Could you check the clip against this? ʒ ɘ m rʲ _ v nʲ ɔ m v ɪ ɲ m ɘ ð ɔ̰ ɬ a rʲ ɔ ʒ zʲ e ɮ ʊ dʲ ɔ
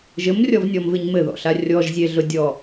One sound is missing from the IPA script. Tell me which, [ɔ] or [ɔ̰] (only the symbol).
ɔ